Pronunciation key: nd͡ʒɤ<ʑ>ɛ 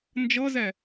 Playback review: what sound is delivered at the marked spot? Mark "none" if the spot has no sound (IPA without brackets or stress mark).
z